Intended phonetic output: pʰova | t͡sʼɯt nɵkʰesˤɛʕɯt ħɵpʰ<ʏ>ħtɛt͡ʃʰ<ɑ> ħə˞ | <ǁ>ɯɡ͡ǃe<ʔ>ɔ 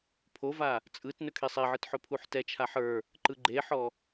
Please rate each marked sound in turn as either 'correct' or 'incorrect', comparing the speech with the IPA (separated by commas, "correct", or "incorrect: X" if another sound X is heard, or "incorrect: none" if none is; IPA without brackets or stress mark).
incorrect: u, incorrect: a, incorrect: ǃ, incorrect: ħ